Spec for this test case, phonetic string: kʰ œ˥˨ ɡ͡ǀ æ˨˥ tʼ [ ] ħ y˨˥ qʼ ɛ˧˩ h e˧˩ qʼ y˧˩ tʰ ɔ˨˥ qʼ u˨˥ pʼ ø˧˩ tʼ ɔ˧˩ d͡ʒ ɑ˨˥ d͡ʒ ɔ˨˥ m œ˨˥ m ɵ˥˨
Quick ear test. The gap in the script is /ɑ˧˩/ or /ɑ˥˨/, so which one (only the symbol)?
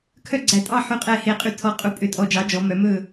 ɑ˥˨